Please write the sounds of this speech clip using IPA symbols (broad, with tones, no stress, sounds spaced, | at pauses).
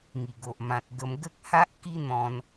ŋ i˨˩ ɡ o˨ ʔ m ã˨ t̚ ɡ ə˧ m ɡ ə˦ k̚ h a˦ ʔ k i˦ n̪ ɔ̃˦ n